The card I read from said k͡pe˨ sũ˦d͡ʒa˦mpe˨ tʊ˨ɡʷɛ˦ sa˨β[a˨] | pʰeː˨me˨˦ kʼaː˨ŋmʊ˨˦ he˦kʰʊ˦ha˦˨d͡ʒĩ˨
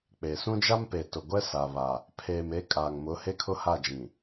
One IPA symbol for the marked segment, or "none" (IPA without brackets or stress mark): a˨